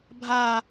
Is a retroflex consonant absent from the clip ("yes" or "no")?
yes